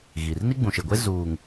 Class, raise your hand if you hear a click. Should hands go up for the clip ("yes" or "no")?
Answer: no